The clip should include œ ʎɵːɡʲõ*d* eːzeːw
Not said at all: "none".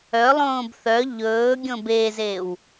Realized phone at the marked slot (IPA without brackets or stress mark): b